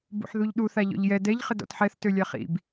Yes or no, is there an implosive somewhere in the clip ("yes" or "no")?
yes